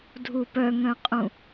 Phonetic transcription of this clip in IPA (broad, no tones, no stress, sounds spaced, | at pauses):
dʱ u p œ ŋ œ̃ qʼ ũ